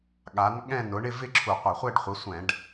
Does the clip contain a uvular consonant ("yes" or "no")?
yes